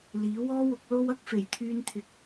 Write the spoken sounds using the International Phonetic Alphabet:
l iː˨˥ w ɔː˥ w ʊ˨˥ k̚ l o˥ w ɐ˥ k̚ f e˨˩ j t̪ʰ yː˧ n t̪ʰ ɪ˨˥ k̚

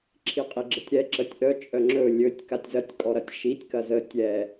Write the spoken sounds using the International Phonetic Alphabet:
ǁʰ i qʼ i ɡ͡ǁ ə tʲ ɾ ɛ ǁ ə tʲ ʔ œ t͡ʃʼ œ ŋ͡ǁ ɵ lʲ ɵ tʲ k a tʲ z ɐ tʲ kʼ ɔ ɾ ɐ tʲ ʃ i tʲ k ɐ z ə tʲ ɛ

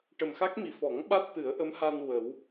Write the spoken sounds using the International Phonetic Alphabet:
ʈ ə˨˩ m x a˦˥ k̚ m i˨˩ f ɔ˨˩˦ ŋ ɓ a˦˥ t̚ t̪ ɨ˨˩˦ ə̯ ʔ ə˧˥ m h a˧ n w ə˨˩˦ w

